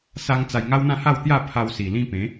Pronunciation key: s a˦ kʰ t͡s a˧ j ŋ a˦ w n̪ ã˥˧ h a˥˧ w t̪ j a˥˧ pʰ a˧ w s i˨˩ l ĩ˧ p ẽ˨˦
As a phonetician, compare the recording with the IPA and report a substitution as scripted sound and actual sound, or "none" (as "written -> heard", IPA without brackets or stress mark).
kʰ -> ŋ